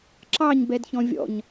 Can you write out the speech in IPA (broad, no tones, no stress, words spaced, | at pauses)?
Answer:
ǁɑɲ bɛdçɔ̃vʲɔ̰ɲ